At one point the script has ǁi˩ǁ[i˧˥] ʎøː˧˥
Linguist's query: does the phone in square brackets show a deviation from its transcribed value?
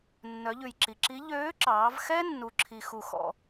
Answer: no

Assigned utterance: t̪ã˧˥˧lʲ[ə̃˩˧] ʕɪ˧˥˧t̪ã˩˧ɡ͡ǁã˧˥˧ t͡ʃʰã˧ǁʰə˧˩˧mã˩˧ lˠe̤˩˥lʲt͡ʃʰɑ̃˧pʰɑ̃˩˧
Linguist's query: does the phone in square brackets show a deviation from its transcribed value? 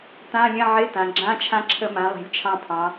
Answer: yes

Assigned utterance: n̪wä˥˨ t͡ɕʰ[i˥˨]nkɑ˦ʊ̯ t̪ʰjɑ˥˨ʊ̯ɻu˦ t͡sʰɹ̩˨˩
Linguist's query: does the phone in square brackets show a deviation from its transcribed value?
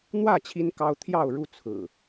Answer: yes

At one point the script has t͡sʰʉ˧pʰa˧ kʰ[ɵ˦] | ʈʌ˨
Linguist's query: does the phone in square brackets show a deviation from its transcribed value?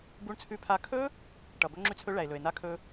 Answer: no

